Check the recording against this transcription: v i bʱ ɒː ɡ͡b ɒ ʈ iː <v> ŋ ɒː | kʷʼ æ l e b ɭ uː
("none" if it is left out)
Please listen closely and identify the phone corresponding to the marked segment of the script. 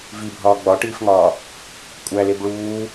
f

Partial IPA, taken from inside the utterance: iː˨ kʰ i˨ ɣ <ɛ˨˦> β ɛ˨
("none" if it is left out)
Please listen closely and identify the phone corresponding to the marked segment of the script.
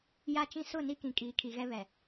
ɛ˦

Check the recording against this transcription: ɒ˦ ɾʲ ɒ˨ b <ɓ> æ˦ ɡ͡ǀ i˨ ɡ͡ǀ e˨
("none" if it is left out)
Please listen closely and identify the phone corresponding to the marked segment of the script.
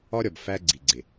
f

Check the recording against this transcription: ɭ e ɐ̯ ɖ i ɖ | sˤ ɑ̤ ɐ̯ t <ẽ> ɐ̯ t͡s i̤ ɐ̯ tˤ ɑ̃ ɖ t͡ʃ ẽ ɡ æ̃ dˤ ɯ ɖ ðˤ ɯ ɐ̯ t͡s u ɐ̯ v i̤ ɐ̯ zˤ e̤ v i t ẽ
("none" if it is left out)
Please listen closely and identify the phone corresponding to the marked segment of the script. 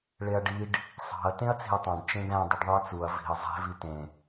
ẽ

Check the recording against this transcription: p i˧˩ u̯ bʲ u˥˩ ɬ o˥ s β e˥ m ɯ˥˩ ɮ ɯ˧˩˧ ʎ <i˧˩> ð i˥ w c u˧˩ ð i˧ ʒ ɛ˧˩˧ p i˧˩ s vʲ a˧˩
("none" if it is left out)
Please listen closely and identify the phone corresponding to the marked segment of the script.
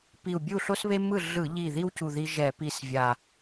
i˧˩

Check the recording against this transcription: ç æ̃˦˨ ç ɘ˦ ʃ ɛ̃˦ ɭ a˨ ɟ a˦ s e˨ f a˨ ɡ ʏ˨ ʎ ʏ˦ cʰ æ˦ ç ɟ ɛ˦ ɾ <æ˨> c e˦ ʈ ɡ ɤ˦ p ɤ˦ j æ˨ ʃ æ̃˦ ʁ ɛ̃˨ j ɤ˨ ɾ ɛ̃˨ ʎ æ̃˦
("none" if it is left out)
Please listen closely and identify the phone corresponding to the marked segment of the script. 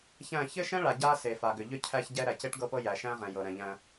æ˨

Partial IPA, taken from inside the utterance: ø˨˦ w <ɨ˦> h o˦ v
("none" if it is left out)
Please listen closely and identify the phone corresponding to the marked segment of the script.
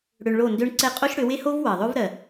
e˦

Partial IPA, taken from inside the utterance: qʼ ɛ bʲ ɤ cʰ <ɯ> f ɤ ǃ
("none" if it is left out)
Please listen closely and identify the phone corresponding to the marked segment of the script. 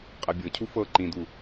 u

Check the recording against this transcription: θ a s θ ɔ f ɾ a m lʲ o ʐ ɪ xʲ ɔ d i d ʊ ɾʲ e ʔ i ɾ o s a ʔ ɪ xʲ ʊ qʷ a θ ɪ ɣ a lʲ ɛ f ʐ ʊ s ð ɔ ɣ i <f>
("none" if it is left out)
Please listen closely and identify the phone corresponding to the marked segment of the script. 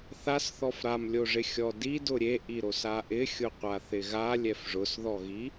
none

